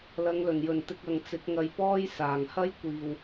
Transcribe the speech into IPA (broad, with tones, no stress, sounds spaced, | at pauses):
l ɐ˨˧ ŋ l ɵ˨˩ n j ɵ˨˩ n t̪ ɪ˧ k̚ ɐ˨ ŋ t͡s ɪ˨˥ k̚ ŋ ɐ˧ j p ɔː˥ j s aː˨˩ ŋ h ɐ˥ j kʷ iː˨ w